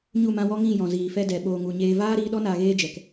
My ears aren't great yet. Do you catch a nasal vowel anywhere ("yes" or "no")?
yes